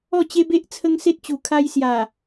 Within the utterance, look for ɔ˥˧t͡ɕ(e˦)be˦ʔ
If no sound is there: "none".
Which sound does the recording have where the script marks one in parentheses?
e˦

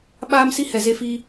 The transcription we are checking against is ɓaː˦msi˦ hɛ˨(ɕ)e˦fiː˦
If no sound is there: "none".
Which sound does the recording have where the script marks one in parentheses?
z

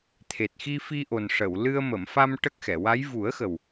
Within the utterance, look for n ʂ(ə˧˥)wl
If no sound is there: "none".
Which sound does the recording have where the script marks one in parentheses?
ə˨˩˨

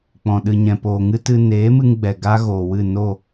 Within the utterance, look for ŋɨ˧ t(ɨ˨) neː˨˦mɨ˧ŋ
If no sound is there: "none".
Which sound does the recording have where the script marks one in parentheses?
ɨ˧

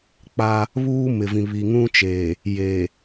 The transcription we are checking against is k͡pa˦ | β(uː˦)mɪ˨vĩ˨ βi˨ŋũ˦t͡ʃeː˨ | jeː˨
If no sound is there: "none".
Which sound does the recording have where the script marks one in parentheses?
uː˦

